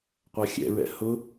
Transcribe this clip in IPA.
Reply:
qʷ a xʲ ɛ̰ ɹ ɛ̰ h ʊ

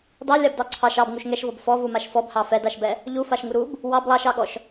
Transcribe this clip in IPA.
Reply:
d ɑ lʲ a b d ɑ ǀʰ ɑ ʃ ɑ b ŋ u ʃ ŋ ɛ ʃ v ɔ b f ɔ v u m a ʃ f ɔ b h ɑ f ɛ d a ʃ b ɛ | ʎ u f a ʃ ŋ u ɾ u b | w ɑ b lˠ ɑ ʃ ɑ ɠ ɔ ʃ

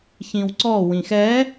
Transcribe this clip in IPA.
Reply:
ç ĩ w ǀ ɔ w ĩ x ɛ

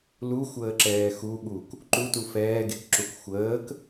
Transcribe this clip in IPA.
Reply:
l u xʷ əː ǁ ɛː x u ɠ u k | ǃ u t u f ɛː ɡ e k ǁ u k xʷ əː k

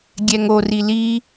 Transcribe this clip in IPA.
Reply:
ɡʲ ɛ ŋ o r i l i

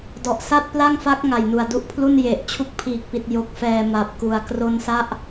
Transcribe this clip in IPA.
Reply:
d ɔ˨˩ ʔ s a˥˩ t̚ p l a˥˩ ŋ f a˦˥ k̚ ŋ a˨˩ j n u˨˩ a̯ d u˦˥ ʔ pʰ l u˥˩ n j e˨˩ ʔ t͡ɕʰ u˦˥ k̚ pʰ iː˨˩ k̚ p i˨˩ t̚ j o˨˩ k̚ f ɛː˨˩ m a˨˩ p̚ k u˨˩ a̯ k r o˧ n s a˦˥ ʔ

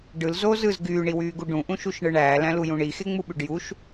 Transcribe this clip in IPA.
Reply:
ɖ ɯ l z o z ɯ z ɡ yː ɳ i w yː ɡ u ɖ ũ ʔ ũ ʃ u ʃ ɳ ɯ ɳ æː l æ̃ l u j ũ ɳ i x e ŋ͡m u ɓ y ɖ j u ʃ

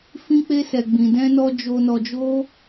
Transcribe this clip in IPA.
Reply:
f ĩ˦ k͡p e˦ s ɛ˧ ɡ͡b ĩ˧ d ɛ̃˦ n ɔ˦ d͡ʒ o˧ n ɔ˧ d͡ʒ o˦

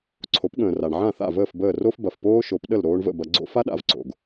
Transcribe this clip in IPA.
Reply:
ǀʰ o˩˥ p ɠ ə̃ː˩ r a˩ ɳ ʕ ã˥˩ θ a̰˥˩ v əː˥˩ f b əː˥˩ r o˥ f b ɐ˩ f p oː˥ ʃ o˩˥ p ɗ ə˥˩ l ɾ oː˧ ɳ v ə̰˥˩ b ɐ˧ ɡ͡ǀ o̰˥ f a˥ ɗ a̰˥˩ v ǀ o̰˩ ɡ

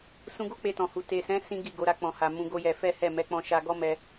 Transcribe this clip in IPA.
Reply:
s ũ˧ ɡ o˦ k͡p e˧ t ɔ̃˨ h u˨ t e˨ s ɛ̃˨˦ s ĩ˦ ɡ i˦˨ ɡ o˨˦ ɾ a˧ k͡p ɔ̃˨ h a˨ m ũ˨˦ ɡ o˦ j ɛ˧ f ɛ˦ h ɛ˦˨ m ɛ˨˦ k͡p ɔ̃˧ ʃ a˧ ɡ ɔ˦ m ɛ˧

